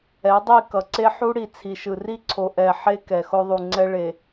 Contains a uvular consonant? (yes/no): no